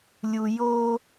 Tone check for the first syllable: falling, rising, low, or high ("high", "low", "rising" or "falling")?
low